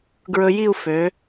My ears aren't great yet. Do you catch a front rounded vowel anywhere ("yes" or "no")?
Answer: yes